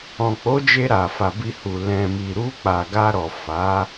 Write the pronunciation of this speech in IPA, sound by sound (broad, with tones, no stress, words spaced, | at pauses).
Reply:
ɔ̃˨k͡po˨˦d͡ʒe˧ ɾa˨fa˨bi˧hu˨ lɛ̃˨mi˨ ɾu˧k͡pa˨ ɡa˧ɾɔ˨ fa˨˦